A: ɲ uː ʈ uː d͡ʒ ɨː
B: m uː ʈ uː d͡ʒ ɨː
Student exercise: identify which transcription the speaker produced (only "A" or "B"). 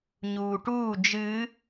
A